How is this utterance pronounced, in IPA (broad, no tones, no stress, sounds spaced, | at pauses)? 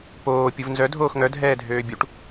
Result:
p oː pʲ u v n z œ dʱ oː x ŋ œ dʱ ɛː dʱ øː bʲ u ʈ